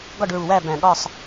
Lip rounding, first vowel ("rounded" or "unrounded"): rounded